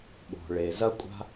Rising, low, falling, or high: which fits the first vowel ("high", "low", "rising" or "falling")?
low